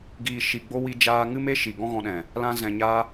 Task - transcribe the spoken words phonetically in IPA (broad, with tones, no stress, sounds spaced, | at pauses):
ɡ iː˨ ʃ i˨ ɡ͡b o˧ w i˧ d͡ʒ aː˧ ŋ ɨ˦ m e˦ ʃ i˨ ɡ ɔ̃˦ ɣ ɔ̃˧ ɗ ɛ̃˨ | l ã˧ z ɛ̃˧ ɲ a˦